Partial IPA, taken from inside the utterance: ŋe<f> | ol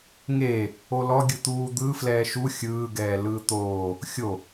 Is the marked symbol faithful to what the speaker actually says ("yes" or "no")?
no